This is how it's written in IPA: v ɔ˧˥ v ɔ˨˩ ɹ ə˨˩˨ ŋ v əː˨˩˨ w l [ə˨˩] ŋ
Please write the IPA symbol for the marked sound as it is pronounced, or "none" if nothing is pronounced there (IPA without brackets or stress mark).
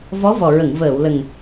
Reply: ə˨˩